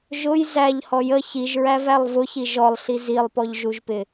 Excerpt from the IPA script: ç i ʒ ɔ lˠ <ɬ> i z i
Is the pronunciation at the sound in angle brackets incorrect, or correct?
correct